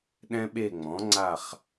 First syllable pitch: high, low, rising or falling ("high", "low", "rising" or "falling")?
high